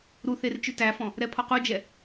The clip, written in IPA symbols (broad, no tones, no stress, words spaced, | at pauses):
ɾuθer t͡ʃʉtæfɔ̃ | ɾɛpʰɔqud͡ʒɛ